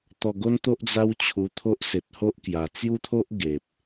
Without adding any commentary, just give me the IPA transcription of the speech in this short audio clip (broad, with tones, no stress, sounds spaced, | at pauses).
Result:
t̪ ɔ˧ ɡ o˦ n t̪ o˦ ʔ d͡z a˦ w t͡ɕʰ u˧ t̪ʰ o˦ ʔ s e˨ t̚ h o˦ ʔ k j a˨˩ t͡s j u˦ t̪ʰ o˦ ʔ ɡ e˨ p̚